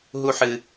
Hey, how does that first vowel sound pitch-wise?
high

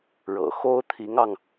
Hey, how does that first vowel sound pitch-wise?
low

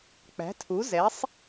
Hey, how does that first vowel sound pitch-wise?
rising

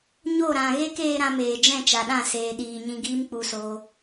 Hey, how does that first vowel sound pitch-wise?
falling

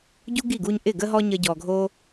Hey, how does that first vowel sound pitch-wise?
high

